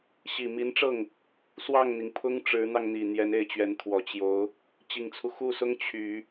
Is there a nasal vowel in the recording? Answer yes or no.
no